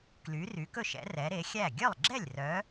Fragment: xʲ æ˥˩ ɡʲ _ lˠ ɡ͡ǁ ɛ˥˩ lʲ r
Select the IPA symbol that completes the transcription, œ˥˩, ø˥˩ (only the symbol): œ˥˩